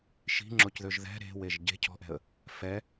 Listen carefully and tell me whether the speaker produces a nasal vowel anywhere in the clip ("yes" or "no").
no